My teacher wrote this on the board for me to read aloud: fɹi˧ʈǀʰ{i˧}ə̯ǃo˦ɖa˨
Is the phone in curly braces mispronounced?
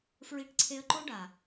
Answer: yes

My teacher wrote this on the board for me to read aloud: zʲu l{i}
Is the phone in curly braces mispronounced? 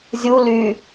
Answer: yes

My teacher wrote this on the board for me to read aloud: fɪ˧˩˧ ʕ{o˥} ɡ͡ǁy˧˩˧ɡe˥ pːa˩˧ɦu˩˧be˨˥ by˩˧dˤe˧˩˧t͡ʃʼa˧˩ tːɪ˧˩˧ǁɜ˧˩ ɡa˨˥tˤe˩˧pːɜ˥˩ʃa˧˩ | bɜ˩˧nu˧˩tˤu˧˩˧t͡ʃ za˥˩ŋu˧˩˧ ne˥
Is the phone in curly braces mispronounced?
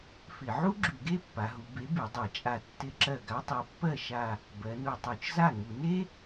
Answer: yes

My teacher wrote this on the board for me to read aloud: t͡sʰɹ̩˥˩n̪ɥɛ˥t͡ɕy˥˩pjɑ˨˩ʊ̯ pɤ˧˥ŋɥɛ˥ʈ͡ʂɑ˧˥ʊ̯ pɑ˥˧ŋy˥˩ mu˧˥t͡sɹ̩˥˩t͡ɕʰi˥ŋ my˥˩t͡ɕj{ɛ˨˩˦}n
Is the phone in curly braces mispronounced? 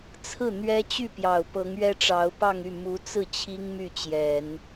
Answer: no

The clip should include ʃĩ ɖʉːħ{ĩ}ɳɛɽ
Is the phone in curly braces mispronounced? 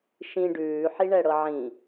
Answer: yes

